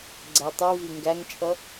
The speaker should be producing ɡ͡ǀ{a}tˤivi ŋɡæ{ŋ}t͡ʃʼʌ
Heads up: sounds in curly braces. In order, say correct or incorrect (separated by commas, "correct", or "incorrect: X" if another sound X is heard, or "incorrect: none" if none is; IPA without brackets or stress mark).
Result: incorrect: æ, correct